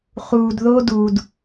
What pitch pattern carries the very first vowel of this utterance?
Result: low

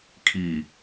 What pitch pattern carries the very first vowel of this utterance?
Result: low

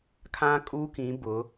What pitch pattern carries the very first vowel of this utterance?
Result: high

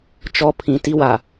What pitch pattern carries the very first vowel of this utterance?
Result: high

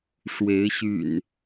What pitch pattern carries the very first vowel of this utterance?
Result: rising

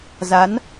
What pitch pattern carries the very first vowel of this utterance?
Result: rising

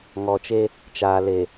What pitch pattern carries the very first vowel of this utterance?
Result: low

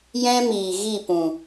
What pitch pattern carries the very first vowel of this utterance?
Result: high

